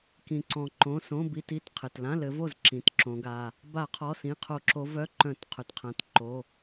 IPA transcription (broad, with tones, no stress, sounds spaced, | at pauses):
k ĩ˩ ǀ ɔ̃˩ ǃ õ˩˧˩ s õ˧˥˧ b i˧˥˧ t i˩˧˩ t qʰ ɘ˩ t l ã˧˥˧ l ɘ˨˦ v o˥˩ z ǁ ĩ˩˧˩ t ǁ õ˨˦ ɡ a˩˧˩ | b a˧˩˧ qʰ ɔ˩˧˩ s ĩ˩˧˩ qʰ o˧˩˧ ǁ o˨˦ v œ˧˥˧ ǃ œ̃˧˩˧ t qʰ ɵ˩ t qʰ ã˩˧˩ t ǃ o˩˧˩